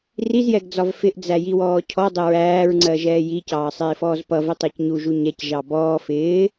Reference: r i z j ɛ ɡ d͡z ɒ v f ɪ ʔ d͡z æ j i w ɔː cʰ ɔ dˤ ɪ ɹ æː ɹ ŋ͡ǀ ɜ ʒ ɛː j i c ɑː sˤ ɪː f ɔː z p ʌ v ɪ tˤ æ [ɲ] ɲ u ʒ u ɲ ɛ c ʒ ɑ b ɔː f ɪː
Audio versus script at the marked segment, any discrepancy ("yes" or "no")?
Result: yes